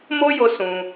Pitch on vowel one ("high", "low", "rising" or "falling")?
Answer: high